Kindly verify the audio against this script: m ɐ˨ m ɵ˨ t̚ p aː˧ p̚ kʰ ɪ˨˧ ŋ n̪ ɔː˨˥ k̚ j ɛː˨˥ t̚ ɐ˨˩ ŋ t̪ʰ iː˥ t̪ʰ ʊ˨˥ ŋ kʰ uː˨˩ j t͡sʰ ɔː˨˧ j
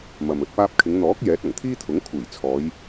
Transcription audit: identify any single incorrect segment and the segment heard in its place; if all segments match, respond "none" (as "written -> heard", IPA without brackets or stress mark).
none